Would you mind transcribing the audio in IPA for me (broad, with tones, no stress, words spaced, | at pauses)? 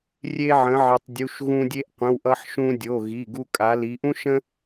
rʲe˧ʕə̃˩˧ ʕɪ˩˧tˤdʲu˩˧˩ʃ ɣũ˧ dʲe˧ʔqʷə̃˩˧˩wʔʌ˧ħʃũ˧ dʲo˩˧˩ɣi˩˧˩ɡu˧ kʼa˩˧li˩˧ʔũ˥ʃə̃˥